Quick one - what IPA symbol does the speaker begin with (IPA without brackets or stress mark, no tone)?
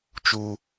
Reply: t͡ʃ